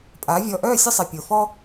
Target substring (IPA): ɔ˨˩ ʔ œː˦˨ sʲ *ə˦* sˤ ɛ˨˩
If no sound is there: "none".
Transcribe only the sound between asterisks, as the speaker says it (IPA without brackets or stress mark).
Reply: ə˦